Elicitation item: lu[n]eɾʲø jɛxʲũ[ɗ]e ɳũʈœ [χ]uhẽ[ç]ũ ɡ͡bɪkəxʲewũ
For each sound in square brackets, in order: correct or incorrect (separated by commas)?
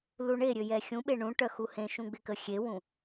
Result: incorrect, incorrect, incorrect, incorrect